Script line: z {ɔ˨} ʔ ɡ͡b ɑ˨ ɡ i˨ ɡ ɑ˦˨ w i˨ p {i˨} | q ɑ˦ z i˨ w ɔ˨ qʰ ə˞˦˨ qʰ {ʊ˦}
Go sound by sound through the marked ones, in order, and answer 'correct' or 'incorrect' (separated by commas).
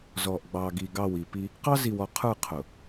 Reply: correct, incorrect, incorrect